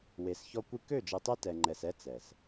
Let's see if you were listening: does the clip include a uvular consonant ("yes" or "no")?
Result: no